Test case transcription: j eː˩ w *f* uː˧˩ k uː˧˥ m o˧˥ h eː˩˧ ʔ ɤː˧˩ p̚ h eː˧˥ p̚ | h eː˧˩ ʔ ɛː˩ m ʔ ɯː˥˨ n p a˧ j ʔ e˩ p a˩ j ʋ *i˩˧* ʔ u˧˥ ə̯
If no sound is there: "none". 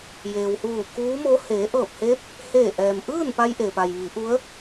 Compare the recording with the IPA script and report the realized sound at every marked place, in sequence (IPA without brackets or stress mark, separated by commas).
h, i˩˧